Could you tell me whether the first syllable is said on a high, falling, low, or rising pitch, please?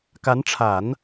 rising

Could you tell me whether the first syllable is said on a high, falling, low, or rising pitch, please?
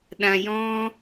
high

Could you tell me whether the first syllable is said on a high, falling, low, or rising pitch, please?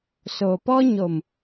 low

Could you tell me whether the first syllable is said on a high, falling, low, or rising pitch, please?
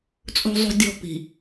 low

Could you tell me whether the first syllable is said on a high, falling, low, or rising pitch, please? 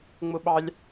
high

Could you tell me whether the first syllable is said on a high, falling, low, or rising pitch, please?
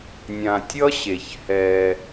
low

